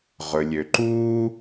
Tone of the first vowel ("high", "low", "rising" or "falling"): low